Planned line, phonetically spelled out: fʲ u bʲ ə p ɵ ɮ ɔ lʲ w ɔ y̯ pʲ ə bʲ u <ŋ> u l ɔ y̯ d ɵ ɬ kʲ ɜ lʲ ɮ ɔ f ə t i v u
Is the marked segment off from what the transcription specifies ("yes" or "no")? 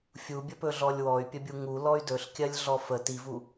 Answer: no